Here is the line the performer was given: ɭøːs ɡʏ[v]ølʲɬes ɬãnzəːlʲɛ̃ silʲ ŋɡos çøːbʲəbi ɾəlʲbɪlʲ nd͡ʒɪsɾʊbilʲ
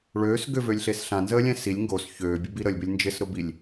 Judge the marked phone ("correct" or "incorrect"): correct